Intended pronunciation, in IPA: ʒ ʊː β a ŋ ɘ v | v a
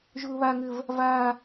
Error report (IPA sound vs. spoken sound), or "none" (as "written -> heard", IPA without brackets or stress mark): none